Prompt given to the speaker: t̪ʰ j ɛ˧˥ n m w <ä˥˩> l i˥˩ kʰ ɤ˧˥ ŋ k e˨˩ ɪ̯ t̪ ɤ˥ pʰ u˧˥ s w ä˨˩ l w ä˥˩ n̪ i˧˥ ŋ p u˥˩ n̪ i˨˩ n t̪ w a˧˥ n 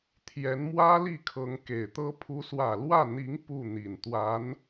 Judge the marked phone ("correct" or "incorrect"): incorrect